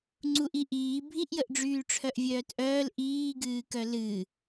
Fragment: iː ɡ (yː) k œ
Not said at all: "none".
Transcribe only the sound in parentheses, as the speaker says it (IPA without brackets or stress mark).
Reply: ɨː